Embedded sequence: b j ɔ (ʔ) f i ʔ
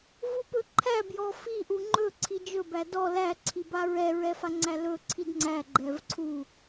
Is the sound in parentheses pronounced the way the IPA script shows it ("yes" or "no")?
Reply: no